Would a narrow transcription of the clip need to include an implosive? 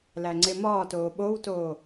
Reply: yes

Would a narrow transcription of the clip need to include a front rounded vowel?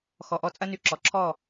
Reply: yes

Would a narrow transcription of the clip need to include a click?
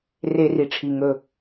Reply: no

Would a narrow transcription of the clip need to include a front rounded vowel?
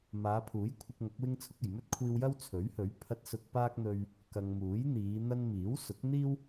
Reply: no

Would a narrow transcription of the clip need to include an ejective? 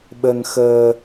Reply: no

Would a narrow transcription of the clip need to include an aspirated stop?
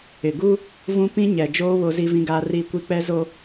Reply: no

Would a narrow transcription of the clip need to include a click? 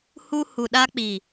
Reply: no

